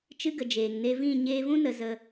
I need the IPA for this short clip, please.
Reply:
t͡ʃ ɨ˦ ɡ ə˨ d͡ʒ eː˨ ŋ n e˧ v ĩ˦˨ ɲ eː˧ v ũ˦ n ə˨ z ə˧

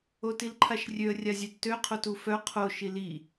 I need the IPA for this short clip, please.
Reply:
o t i l ǃʰ a ʃ rʲ ø ə̯ rʲ a zʲ œ d t ø qʰ o t u f œ qʰ o ʃ i l i

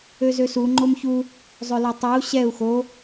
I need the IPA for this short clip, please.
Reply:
ø z ø s u ŋ͡ǃ o m ç u | zˤ ø l o tˤ o u̯ ɕ ɛ u̯ x o

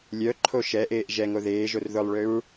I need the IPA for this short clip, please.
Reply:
lʲ œ ǃʰ o ʃ ɛ ʔ eː ʔ ʒ ɛ ŋ o ð eː ʒ o r ð ʊ lˠ ɭ ø ɹ

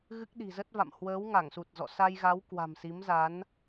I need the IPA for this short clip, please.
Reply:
ɣ ɨ˦˥ k̚ ɗ i̤˨˩ z ə˦˥ t̚ v a̰˧˨ m h w əː˨˦ w ŋ a˧˩ ŋ s u˨˩ t̚ z ɔ̰˧˨ s a˧ j ɣ a˨˦ w k w a̤˨˩ m s i˨˦ m z a˨˦ n

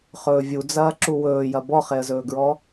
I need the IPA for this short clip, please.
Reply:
χ ɵː vʲ u d͡z ɐː ǁ u w ɵː j ɐ b ɔ χ e ə̯ z ɵː ɡ ɹ ɔ

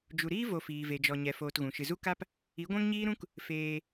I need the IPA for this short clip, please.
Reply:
d͡ʒ u˨ ɾ iː˦ v o˧ f iː˨ v e˨ d͡ʒ ɔ˨ ɲ ɛ˧ f oː˧ t ɣ ũ˨ ʃ ɨ˨ z u˦ k a˦ p | i˨˦ ɡʷ ɛ̃˦ ŋ ɲ iː˦ ɾ ũ˦ k | f eː˧

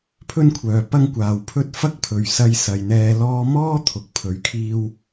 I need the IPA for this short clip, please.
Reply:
pʰ ɵ˥ n kʷʰ œː˨ p ɐ˥ ŋ kʷ aː˨ w pʰ ɵ˥ t̚ f ɐ˥ k̚ pʰ ɵ˨ ɥ s ɐ˧ j s ɐ˨ j n̪ ɛː˧ l ɔː˧ m ɔː˥ t̪ʰ ʊ˨˥ k̚ pʰ ɵ˨˧ ɥ kʰ iː˥ w

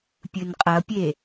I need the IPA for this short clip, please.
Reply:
pʲ ɨ n qʼ ɐ pʲ e

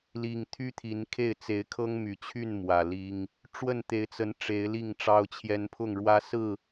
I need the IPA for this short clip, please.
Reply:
l i˨˩ ŋ t̪ʰ y˦ t̪ʰ i˨˦ n kʰ e˥˨ ɪ̯ t͡s e˨˦ ɪ̯ kʰ ɤ˦ ŋ m y˨˩ t͡ɕʰ y˥˨ n m w ä˨˩ l i˦ ŋ | ʈ͡ʂ w ə˥˨ n t̪ e˨˦ ɪ̯ t͡s ə˨˦ n ʈ͡ʂ e˨˦ ɪ̯ l i˥˨ ŋ ʈ͡ʂ ɑ˦ ʊ̯ t͡ɕʰ j ɛ˦ n pʰ ʊ˥˨ ŋ ɻ w ä˦ s ɹ̩˥˨

